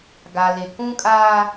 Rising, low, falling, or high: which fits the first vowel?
low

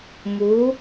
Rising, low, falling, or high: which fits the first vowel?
rising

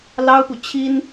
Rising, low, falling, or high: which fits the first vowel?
high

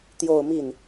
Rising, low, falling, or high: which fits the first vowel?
falling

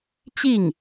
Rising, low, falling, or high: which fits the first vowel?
falling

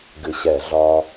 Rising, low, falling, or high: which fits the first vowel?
low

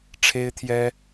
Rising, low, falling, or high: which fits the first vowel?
high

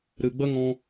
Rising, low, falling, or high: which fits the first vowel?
low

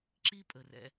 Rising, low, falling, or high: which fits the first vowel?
high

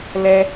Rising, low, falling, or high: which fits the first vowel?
high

